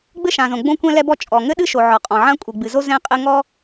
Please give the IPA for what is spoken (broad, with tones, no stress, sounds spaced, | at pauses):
ɡ͡b ɘ˥ ʃ ã˩ z õ˩ ɡ͡b õ˥ kʷ ɛ̃˥ l ɛ˥ b ɔ˥ t͡ʃʼ ɔ˩ ŋ ɘ˥ ɗ ɨ˥ ʃ o˩ ʕ ɔ˩ qʼ ɔ̃˩ ʕ ã˥ kʷʼ ɨ˩ ɡ͡b ɨ˩ z o˥ z ɛ̃˥ qʼ ɘ˥ ŋ ɔ˥